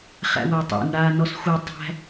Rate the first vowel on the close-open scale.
open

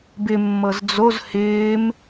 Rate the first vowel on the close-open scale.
close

